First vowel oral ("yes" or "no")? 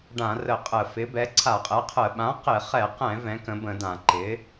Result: no